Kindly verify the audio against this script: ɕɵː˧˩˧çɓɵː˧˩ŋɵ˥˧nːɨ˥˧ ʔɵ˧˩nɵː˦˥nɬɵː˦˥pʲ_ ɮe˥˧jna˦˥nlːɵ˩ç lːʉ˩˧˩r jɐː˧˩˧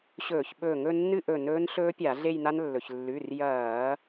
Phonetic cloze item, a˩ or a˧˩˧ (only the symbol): a˧˩˧